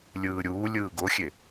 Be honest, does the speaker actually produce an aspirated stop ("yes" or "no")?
no